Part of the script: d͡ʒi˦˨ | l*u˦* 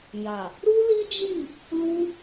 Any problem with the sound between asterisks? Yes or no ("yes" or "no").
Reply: no